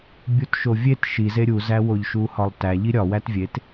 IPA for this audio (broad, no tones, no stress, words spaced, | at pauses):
bʲutʃovʲet ʃi zeɾʲuzæwoʎ ʃuhɒlˠtæ ʎiɾʲɒ wætvʲet